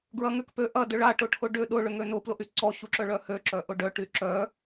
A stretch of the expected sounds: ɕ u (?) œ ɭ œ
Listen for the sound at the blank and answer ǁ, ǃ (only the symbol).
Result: ǁ